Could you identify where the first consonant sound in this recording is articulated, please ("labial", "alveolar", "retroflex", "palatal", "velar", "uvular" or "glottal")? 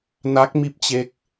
alveolar